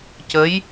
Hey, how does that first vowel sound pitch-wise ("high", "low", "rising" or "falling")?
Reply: rising